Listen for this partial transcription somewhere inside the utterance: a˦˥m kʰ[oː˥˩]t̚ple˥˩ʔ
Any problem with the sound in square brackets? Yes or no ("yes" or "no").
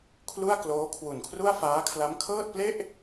yes